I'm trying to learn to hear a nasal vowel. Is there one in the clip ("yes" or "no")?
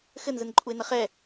no